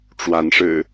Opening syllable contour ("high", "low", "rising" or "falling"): rising